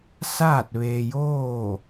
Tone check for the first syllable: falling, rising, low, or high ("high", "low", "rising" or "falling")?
falling